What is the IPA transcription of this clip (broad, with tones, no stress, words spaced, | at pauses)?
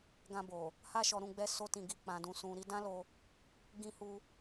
ɡã˧bo˨ | ha˦ʃɔ˧ ɾũ˧ɡ͡bɛ˧so˧ tĩ˨ɡi˨ k͡pã˨dũ˨sũ˨ ɾi˧dã˦lo˧ | ɡĩ˧hu˧